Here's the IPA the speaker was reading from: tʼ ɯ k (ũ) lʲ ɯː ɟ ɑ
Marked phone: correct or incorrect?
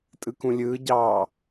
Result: correct